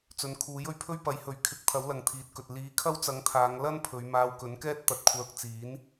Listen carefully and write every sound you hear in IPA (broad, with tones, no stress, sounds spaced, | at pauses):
t͡s ɵ˨˧ n kʰ uː˨˥ j ɵ˧ ɥ pʰ ɵ˥ ɥ p ɐ˨˥ j h ɵ˨˥ ɥ kʰ ɪ˨˥ k̚ t̪ʰ ɐ˨˥ w l ɐ˨ ŋ t̪ʰ iː˨ t̚ k ɵ˨ t̚ l iː˨˧ kʰ ɐ˥ w t͡s ɐ˨˥ ŋ t̪ʰ aː˨˧ ŋ l ɐ˥ n pʰ ɵ˨˧ ɥ m aː˧ w k ɵ˨˥ n k ɛː˥ t̚ t̪ ɐ˨ t̚ kʷʰ œː˧ k̚ t͡s iː˨˥ n